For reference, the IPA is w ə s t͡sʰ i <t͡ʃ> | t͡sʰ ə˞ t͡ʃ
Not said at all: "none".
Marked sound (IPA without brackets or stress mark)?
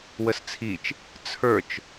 t͡ʃ